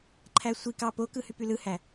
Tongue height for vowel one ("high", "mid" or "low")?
low